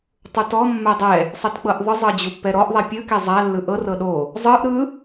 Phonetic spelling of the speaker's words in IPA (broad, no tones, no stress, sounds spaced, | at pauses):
tˤ u t ɔ mː ɛ dˤ ɛ | sˤ ɛ t k͡p ɤ ʔ ðˤ ɯ zˤ ɤ d͡ʑ u pː ɛ ɾ ɔ ʔ ðˤ ɛ pʲ ɯ k e zˤ a lː ɯ ʔ ɤ r ɤ ɗ o | zˤ ɯ ʔ ɾ ɯ